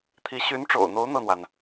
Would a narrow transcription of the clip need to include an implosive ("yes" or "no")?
no